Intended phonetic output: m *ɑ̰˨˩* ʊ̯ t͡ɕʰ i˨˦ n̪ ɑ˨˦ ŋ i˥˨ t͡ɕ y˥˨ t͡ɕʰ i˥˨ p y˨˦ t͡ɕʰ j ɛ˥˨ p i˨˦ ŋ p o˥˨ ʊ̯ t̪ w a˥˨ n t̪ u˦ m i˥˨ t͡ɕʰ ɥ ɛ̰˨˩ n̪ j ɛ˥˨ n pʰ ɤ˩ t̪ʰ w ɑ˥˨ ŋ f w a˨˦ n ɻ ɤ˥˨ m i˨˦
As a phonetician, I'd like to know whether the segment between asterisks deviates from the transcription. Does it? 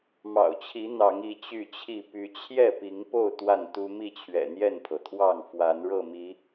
no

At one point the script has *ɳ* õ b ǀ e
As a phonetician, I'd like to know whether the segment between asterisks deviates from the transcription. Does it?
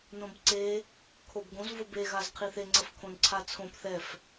yes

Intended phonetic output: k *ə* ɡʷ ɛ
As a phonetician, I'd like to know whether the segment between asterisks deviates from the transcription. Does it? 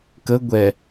no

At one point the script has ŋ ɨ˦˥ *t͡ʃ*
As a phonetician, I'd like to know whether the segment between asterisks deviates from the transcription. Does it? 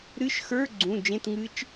no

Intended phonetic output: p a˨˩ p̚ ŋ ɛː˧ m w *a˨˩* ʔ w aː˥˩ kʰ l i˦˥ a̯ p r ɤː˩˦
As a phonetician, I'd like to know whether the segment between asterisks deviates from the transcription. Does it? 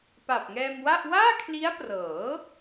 yes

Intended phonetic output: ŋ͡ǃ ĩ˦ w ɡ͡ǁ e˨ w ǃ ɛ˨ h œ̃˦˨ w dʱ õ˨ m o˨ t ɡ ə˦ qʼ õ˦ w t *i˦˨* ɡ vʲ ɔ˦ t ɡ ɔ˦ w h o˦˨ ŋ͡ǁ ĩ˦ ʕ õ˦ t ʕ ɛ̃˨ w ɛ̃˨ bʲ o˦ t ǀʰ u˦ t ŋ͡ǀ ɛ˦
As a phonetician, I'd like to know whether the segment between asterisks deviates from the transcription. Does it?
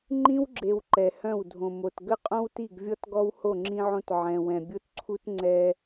no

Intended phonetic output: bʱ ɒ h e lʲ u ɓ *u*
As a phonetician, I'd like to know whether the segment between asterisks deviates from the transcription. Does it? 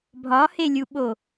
yes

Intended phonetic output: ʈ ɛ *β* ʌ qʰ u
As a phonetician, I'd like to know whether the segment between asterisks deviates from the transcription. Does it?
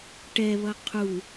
no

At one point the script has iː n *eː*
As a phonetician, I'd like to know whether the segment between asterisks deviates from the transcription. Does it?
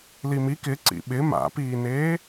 no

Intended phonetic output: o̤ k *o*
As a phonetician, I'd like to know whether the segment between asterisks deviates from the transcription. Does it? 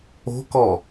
yes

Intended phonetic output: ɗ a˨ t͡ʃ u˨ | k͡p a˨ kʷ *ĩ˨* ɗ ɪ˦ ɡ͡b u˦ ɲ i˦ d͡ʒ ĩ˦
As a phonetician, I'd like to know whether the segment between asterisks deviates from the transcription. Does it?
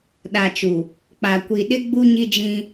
yes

